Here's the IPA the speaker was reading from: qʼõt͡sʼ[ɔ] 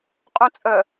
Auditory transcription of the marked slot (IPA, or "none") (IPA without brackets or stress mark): ə